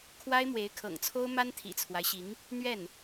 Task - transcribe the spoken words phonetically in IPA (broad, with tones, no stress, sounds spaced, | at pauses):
kʰ w a˥ ɪ̯ m w e˧˥ ɪ̯ kʰ ɤ̰˨˩ ŋ t͡sʰ o˥ ʊ̯ m a˥ n t̪ʰ ḭ˨˩ t͡sʰ w a˦ ɪ̯ ɕ i˧˥ ŋ | n̪ ɥ ɛ˥˩ n